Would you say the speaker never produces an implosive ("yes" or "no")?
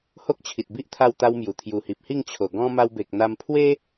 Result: yes